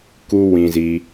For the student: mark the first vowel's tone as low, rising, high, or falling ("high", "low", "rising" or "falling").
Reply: high